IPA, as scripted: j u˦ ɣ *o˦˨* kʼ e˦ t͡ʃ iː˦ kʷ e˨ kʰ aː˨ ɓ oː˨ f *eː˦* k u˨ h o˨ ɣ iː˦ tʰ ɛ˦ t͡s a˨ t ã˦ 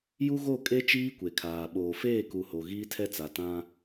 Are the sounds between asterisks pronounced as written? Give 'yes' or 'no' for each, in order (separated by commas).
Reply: yes, no